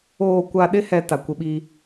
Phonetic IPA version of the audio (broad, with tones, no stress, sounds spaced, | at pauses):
oː˨ kʷ a˨ ɗ ɪ˦ h ɛ˦ t a˨ kʷ ɪ˦ ɓ i˦